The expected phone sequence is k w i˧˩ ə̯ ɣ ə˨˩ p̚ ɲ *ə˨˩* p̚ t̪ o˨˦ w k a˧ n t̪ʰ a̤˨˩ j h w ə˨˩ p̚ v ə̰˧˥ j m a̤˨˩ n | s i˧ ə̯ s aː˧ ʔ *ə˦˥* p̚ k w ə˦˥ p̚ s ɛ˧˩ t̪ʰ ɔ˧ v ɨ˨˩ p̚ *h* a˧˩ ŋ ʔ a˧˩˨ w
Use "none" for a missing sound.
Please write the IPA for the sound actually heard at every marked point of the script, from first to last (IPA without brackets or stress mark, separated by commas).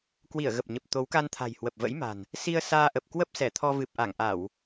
ə˨˩, ə˨˩, ʔ